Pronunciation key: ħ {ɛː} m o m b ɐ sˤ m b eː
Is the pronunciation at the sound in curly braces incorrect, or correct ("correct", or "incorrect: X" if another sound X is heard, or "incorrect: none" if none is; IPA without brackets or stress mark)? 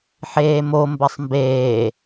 incorrect: eː